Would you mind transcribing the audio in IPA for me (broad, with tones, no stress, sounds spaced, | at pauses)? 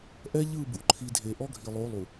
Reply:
ʔ ɛ˦ ʎ ɯ˦˨ b ṵ˨ ǃʰ i˨ dʱ e˨ ʔ ɔ˦ ɡʱ i˨ lˠ o˨˦ lˠ u˨